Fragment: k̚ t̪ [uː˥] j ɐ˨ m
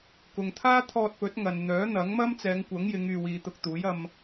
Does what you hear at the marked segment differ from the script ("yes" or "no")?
yes